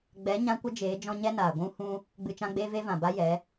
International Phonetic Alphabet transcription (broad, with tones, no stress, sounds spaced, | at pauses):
ɡ͡b ɛ˨˦ ɲ ã˦ kʷ ə˦ d͡ʒ eː˨˦ d͡ʒ ɔ̃˧ ɲ ɛ˦ n aː˨ ɡʷ ũ˦ h ũ˦ | ɡ͡b ɨ˧ t͡ʃ ã˦ ɡ͡b eː˦ v e˦ v ã˨ b a˦ j ɛ˨˦